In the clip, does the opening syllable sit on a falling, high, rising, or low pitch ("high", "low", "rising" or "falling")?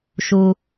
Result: low